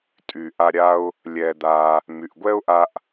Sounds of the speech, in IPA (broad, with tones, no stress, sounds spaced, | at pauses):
tʼ y˩ ʔ a˧ ɾʲ a˧ ʊ̯ | lʲ ɛ˩ d̪ a˩ | m y˩ ʔ ɡʷ ɛ˥ ʊ̯ ʔ a˧ ʔ